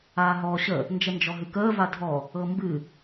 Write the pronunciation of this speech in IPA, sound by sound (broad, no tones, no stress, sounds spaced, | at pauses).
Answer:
aː ɦ ɔː ɕ ə | n d͡ʒ ə n d͡ʒ ɔ ɦ ɨ k əː v a dʱ ɔ | ɤ m b ɨ